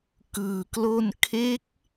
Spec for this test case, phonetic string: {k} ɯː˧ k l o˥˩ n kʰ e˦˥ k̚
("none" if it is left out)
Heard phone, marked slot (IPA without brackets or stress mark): k